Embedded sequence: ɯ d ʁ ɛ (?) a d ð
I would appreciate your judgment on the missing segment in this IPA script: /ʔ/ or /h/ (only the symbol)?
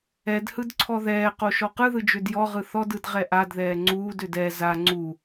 ʔ